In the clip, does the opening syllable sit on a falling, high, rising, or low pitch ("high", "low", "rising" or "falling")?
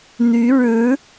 rising